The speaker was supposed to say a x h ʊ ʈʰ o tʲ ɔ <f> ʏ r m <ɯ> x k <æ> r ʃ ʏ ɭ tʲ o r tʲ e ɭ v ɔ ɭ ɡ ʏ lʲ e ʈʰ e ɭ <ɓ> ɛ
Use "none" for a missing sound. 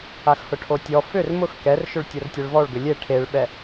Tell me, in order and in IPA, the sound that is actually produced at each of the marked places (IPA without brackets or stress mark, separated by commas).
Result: f, ʊ, ɛ, ɓ